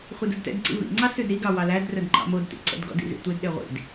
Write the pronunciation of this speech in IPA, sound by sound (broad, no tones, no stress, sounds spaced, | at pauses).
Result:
χʷ ɛ d u d t ɛ̰ d ǀ ḭ v ḭ ŋ͡ǀ ɑ s ʉ d ɾ i ɡ ɑ w ɑ l æ d r œ d ŋ͡ǃ ɑ̰ m o d t ḭ ǀ ɛ̰ d ɡ ɔ̰ d ḭ z ḭ tʷ e d ɗ e ʁʷ ḭ d